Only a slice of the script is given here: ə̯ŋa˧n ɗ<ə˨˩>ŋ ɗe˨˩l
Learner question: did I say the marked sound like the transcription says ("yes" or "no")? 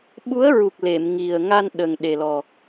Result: yes